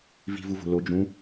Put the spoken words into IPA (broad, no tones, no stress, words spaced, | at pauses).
vi̤vuvo̤ lo d͡ʒũ